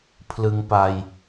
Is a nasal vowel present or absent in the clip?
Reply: absent